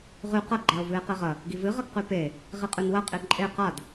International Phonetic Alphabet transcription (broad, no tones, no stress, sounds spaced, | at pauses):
ʁ ʉ q ɐ ɡ͡ǃ a o̯ v ɨ e̯ q e ʁ ɐ | ɡ i v ɨ ʁ ɐ ɡ q ʉ p e | ʁ i qʼ ʉ n w ɐ qʼ i ǃʼ e q a d